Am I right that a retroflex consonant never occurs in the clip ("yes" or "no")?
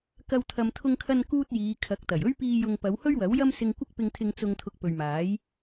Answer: yes